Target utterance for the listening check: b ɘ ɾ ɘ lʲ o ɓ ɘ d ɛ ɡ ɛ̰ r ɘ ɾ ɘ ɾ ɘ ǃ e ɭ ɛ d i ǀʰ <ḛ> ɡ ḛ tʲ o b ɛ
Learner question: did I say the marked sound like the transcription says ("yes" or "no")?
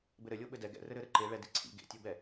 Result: no